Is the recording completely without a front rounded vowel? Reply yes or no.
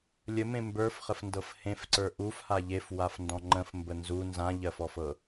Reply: yes